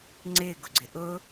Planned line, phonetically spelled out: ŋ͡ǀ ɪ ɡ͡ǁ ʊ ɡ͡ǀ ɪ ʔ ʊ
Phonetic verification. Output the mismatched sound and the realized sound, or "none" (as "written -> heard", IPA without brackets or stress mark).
ɡ͡ǁ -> ɡ